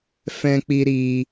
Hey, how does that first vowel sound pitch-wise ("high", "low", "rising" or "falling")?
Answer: high